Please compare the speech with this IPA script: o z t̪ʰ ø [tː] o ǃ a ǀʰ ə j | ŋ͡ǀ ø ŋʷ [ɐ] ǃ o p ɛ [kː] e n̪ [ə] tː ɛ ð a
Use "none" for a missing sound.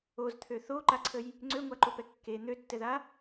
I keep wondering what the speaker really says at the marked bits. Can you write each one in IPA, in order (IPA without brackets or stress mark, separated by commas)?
θ, a, kː, ø